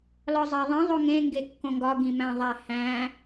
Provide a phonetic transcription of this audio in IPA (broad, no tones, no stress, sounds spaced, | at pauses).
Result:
l ɒ zˤ æ ðˤ ĩ ðˤ o ŋ ẽ ŋ ɡ e kː õ ŋ ɡ ɒ ɡ ĩ m æ̃ ðˤ æ h æ̃